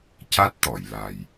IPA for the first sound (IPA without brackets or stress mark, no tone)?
c